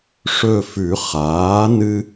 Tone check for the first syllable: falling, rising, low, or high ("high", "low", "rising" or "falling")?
falling